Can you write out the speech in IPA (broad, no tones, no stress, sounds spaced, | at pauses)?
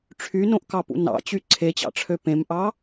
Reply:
ʈ͡ʂʰ y n õ ʔ k ɑ p ṵ n ɑ̰ t͡ɕ y ǀʰ e t͡ɕ ɑ̰ ʈ͡ʂʰ ø p ẽ m ʔ ɑ